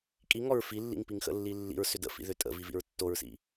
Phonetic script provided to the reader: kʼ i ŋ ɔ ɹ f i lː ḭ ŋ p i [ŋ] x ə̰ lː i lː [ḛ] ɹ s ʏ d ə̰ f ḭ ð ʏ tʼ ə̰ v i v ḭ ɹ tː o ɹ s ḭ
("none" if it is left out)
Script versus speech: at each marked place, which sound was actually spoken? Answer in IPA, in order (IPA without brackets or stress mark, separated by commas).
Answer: ŋ, ḭ